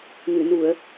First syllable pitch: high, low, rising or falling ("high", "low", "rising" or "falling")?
low